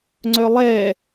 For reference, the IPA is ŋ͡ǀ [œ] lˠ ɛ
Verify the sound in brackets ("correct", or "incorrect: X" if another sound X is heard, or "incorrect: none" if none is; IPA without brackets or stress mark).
correct